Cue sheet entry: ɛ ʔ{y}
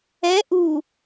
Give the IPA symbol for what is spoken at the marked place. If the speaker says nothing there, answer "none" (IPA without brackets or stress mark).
u